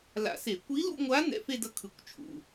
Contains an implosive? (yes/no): no